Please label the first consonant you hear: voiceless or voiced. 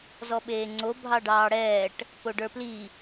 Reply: voiced